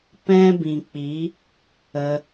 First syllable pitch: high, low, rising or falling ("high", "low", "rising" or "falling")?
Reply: high